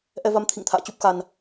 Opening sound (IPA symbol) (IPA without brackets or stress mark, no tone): ʔ